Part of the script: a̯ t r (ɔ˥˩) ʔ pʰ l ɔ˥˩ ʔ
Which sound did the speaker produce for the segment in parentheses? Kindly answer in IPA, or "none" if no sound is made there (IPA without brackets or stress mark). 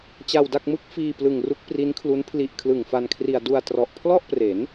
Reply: ɔ˨˩